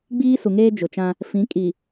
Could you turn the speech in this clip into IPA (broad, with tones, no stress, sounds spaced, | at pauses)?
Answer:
ɡ͡b iː˦ s u˨ ŋ eː˦ d͡ʒ ʊ˨ t͡ʃ ã˦ | f ĩ˨˦ kʼ i˨